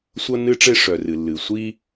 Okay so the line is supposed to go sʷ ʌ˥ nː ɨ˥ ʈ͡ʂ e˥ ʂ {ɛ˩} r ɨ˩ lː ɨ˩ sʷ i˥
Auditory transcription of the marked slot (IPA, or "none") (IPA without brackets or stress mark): œ˩